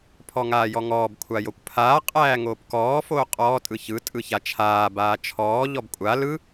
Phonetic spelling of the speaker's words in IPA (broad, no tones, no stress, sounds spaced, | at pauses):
pʰ ɔ ŋ aː j ɔ ŋ ɔː b kʷʰ a j o kʷ pʰ aː qʼ æː ŋ oː p k ɔː f oː qʼ ɔː tʼ ɯ ç ɯ tʼ ɯ ç a t͡ʃʰ aː b aː t͡ʃʰ ɔː ʎ ɔ b kʷʼ a l ɯ